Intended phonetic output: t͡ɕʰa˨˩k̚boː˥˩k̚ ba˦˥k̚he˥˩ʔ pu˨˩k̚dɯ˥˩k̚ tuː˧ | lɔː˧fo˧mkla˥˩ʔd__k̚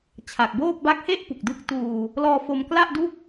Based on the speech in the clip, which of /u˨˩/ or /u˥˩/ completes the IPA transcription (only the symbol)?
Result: u˥˩